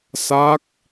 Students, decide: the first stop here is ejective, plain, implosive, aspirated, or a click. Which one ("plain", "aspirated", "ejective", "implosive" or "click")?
plain